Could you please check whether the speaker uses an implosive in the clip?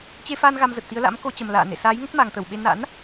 yes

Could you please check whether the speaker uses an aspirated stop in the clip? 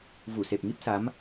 no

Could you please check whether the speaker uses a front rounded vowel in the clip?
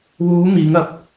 no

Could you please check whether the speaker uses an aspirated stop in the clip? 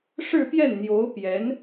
no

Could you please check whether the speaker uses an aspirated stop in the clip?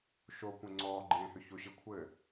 yes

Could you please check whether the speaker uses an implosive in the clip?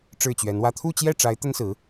no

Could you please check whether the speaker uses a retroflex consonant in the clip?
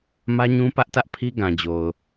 no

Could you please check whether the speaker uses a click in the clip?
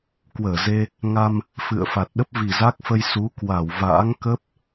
no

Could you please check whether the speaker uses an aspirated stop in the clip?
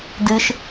no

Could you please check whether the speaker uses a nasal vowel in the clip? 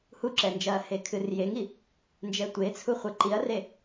no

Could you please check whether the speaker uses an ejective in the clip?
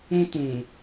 no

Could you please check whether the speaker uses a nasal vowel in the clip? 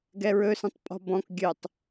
yes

